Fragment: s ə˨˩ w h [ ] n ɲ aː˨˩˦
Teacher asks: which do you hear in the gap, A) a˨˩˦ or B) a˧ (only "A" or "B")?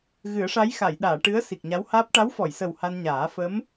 B